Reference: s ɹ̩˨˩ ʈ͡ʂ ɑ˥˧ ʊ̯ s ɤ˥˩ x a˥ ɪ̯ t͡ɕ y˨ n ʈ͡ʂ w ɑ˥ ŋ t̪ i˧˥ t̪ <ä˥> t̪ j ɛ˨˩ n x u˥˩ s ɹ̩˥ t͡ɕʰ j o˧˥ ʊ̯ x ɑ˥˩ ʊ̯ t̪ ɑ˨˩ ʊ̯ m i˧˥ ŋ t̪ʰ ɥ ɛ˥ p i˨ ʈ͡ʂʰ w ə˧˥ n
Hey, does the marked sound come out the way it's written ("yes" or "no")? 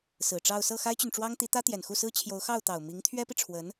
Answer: yes